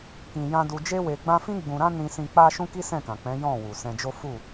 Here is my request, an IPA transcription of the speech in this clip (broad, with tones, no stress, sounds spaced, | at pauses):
k ĩ˧ j ã˦ d u˧ d͡ʒ e˦ w e˧ ɡ͡b ã˦ f ĩ˦ ɡ͡b ũ˧ ɾ ã˦ n ĩ˧ s ĩ˧ k͡p a˦ ʃ ũ˦ k i˦ s ɛ̃˦˨ k ã˨ k͡p ɛ̃˨˦ j ɔ̃˦˨ w u˨ s ɛ̃˧ d͡ʒ o˦ f u˦˨